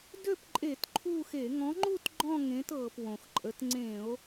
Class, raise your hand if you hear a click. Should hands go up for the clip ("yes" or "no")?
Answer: yes